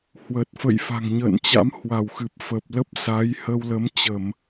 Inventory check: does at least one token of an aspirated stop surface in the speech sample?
no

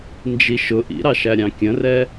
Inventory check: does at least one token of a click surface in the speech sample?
no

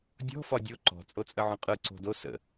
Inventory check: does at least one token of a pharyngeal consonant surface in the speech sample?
yes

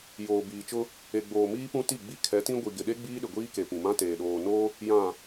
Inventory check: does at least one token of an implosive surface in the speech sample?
yes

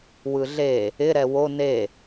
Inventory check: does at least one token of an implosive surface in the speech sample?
no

